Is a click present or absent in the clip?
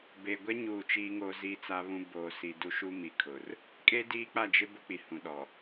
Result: absent